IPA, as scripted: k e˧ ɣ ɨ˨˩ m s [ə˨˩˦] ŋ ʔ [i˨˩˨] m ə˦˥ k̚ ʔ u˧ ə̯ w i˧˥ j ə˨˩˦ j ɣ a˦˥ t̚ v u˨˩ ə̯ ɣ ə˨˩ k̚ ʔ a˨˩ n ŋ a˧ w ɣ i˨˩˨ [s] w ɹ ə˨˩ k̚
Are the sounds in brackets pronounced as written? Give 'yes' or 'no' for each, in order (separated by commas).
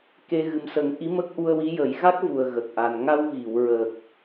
yes, no, no